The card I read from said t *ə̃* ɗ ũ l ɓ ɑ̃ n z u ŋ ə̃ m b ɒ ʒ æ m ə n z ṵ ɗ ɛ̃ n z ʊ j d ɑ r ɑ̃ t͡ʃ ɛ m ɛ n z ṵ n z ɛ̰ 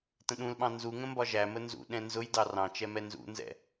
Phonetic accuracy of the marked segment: correct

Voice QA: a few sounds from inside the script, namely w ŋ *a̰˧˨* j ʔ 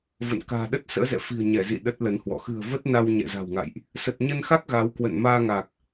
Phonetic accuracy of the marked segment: correct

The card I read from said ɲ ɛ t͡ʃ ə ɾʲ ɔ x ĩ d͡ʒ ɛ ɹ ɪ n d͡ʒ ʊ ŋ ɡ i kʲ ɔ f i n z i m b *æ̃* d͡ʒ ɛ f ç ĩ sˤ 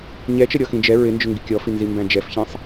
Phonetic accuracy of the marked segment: correct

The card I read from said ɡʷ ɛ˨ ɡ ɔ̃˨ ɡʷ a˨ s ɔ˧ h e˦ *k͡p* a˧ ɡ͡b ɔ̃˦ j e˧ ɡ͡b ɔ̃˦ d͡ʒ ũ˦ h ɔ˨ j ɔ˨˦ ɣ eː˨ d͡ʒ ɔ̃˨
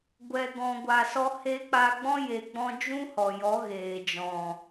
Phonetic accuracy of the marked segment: correct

